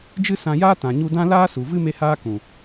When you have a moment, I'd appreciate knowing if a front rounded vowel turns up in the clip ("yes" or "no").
no